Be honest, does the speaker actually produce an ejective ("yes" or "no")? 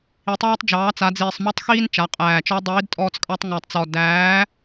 yes